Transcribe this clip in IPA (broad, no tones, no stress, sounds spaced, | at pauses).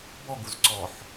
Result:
b ɔ ɡ u z ǀ ɔ ħ